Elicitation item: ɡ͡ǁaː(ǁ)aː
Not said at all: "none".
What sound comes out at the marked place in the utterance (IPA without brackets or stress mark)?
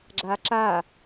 ǁ